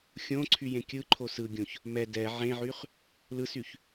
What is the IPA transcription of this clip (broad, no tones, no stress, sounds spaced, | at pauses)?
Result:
xʲ õ ǀʰ y j ẽ kʲ ɯ ǃʰ o s ɯ ɡʲ õ ç | m ɛ d ɛ ʕ ẽ ʕ y χ | l ɯ s y ç